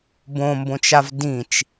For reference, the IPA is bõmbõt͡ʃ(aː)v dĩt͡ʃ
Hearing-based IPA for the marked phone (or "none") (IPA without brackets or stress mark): a